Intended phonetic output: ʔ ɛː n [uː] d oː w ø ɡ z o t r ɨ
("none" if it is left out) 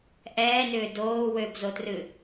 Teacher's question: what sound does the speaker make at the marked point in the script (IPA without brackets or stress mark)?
ʏː